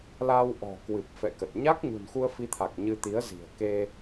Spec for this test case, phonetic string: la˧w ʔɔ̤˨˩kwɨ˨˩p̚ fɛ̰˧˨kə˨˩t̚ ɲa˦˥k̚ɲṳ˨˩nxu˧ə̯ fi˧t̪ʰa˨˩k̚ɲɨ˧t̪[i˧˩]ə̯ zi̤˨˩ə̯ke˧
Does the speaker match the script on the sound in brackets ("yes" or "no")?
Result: no